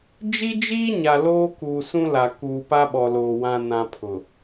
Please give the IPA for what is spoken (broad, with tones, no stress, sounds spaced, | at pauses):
d͡ʒ i˦ d͡ʒ iː˦ ɲ a˨ l oː˦ k uː˨ s ũ˦ l a˨ k uː˨ p a˦ ɓ ɔ˨ l oː˨ w ã˨ n ã˨ pʰ ʊ˨